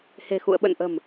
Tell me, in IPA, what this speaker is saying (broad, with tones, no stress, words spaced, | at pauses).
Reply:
he̤˨˩xṵ˧˨ə̯ ɓə̰˧˨nʔə̤˨˩m